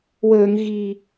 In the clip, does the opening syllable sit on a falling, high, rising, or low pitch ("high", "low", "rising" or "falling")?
low